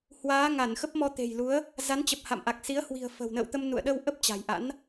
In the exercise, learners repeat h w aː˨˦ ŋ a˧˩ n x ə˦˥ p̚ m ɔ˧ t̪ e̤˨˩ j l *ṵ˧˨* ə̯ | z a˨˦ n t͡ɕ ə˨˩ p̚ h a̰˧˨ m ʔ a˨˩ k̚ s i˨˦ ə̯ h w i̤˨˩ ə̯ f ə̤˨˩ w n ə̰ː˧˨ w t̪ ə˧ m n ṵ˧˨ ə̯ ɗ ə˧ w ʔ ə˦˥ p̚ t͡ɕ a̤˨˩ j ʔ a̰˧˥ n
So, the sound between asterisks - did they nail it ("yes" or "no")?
no